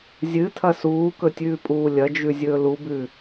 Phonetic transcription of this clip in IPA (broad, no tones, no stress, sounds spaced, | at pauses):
zʲ ɨ tʰ ɐ s uː k ɵ tʲ ʉː pʼ uː lʲ ɐ d͡ʒ ʉ zʲ ɵː l u b ʉ